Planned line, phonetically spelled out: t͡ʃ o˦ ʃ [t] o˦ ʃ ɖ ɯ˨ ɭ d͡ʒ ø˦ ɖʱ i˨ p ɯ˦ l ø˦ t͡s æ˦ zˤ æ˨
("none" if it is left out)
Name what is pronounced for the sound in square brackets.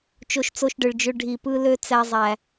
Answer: t͡s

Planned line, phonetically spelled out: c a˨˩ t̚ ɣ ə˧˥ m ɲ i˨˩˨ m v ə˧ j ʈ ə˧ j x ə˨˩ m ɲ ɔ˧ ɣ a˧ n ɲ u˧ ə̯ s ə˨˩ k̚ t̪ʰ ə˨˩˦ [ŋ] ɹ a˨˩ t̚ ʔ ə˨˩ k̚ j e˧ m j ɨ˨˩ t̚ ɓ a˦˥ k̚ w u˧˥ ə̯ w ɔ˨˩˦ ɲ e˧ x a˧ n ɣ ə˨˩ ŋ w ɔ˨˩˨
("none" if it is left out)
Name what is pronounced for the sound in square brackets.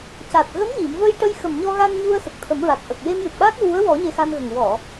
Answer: m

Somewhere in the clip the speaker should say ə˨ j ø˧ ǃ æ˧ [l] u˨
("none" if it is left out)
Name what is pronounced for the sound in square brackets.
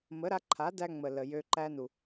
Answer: n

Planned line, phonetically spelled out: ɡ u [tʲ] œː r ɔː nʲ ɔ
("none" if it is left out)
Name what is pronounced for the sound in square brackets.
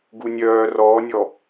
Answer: nʲ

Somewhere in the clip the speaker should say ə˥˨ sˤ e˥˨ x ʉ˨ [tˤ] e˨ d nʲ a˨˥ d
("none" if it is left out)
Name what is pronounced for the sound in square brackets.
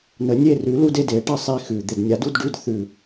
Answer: d̪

